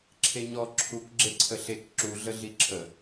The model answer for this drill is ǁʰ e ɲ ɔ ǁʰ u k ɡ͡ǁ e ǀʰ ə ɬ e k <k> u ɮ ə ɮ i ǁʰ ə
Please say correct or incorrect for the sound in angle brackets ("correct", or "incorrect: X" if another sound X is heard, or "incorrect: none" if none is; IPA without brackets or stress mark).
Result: incorrect: ǁ